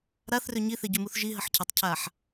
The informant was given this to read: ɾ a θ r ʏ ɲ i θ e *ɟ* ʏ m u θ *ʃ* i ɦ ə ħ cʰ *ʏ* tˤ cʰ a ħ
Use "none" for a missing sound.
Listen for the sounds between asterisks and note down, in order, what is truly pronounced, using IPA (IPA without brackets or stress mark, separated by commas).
ɟ, ʒ, ɪ